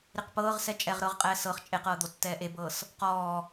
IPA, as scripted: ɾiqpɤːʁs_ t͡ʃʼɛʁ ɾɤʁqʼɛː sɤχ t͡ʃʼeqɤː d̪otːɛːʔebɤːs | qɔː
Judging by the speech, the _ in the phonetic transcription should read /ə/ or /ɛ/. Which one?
ɛ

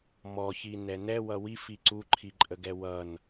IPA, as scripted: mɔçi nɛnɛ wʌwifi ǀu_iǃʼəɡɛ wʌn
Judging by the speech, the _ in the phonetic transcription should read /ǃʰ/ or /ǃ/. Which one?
ǃʰ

